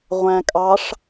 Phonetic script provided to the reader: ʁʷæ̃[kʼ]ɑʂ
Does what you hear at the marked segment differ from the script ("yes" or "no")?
no